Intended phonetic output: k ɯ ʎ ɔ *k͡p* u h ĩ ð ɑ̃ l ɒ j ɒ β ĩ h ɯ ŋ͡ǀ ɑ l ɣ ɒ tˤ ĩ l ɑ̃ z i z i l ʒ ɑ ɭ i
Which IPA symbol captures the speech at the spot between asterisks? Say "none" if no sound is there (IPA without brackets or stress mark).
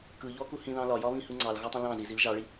k